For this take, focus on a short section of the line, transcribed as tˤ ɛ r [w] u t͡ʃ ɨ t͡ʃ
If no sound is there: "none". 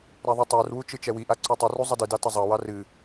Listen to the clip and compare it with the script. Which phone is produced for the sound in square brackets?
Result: w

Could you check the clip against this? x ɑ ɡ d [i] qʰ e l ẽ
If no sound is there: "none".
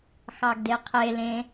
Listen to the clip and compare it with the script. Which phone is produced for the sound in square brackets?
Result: e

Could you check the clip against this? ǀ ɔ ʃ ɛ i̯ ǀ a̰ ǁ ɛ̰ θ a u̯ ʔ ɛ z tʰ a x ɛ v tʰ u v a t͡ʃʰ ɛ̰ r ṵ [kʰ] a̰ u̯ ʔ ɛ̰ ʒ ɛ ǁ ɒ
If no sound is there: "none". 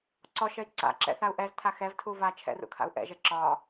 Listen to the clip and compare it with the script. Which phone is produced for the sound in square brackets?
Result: kʰ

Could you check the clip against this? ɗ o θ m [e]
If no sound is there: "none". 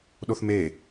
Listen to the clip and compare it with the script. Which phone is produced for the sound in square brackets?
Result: e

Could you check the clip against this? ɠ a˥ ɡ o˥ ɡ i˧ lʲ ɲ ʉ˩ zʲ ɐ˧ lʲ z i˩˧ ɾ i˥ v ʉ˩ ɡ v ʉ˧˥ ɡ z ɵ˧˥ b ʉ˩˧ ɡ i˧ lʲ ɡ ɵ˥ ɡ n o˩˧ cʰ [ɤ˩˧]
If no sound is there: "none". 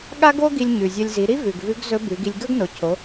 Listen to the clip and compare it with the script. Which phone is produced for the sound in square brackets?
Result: o˩˧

